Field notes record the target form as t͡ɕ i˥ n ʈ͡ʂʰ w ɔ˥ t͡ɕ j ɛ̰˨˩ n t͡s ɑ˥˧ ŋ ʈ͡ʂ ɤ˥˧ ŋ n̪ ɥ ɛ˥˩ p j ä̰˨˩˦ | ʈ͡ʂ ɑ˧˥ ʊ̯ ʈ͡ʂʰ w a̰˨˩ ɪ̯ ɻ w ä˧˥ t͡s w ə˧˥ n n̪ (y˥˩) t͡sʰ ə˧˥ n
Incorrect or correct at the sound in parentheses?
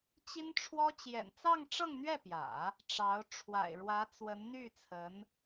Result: correct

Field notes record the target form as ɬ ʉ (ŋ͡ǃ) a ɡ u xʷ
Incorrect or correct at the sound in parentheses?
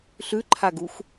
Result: incorrect: ǃʰ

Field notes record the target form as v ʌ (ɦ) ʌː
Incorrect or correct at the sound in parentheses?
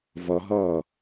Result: correct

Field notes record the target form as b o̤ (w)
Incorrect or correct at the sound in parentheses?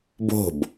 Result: incorrect: b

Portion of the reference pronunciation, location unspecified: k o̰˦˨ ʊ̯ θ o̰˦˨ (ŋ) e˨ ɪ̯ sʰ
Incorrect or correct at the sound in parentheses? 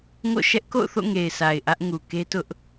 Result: correct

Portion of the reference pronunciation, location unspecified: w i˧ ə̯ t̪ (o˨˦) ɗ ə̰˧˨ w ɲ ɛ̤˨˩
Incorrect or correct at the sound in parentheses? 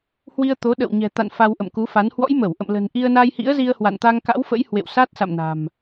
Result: correct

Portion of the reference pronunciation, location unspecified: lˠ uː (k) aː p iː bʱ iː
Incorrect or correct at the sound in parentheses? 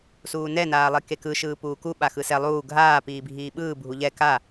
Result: incorrect: ɡʱ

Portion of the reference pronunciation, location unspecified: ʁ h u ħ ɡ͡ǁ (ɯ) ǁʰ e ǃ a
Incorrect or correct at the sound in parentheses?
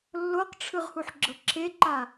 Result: incorrect: ɤ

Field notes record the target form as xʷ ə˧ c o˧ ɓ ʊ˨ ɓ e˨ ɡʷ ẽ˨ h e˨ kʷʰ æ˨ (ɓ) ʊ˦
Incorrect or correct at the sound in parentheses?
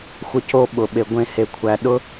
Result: incorrect: ɗ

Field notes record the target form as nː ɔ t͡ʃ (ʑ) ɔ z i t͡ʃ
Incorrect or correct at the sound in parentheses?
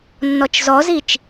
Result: incorrect: z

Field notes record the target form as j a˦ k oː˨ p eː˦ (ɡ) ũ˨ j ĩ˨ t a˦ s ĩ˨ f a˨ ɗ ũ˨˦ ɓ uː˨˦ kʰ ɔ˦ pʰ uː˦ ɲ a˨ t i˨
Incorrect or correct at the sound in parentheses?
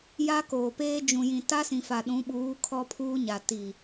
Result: incorrect: d͡ʒ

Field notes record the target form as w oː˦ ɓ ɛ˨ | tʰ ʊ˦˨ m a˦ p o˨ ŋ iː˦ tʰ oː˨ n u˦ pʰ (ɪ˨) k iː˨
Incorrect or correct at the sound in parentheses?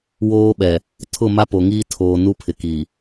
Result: correct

